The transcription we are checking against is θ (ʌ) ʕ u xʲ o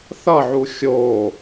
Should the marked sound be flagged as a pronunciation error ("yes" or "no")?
no